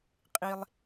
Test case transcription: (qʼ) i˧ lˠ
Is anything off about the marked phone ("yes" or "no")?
no